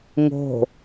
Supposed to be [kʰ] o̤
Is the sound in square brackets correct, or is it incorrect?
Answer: incorrect